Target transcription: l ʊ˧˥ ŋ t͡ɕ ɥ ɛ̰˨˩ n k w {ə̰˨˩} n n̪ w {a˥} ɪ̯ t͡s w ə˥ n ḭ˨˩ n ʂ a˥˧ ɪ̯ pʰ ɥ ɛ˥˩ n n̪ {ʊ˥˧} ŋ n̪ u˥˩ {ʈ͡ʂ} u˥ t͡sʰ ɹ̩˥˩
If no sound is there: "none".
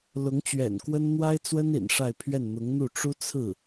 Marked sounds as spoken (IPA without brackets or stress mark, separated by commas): ə˥, a˥, ʊ˧˥, ʈ͡ʂ